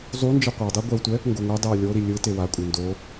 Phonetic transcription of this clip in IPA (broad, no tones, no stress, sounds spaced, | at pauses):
zˤ u n d͡ʒ ɯ qʷ a dˤ i ɡʷ ɛ w tʷ ɛ | ŋ ɡ o ŋʷ ɛ dˤ ɛ w lʲ o ɾ i lʲ ɯ t e w a kʷʼ e n d o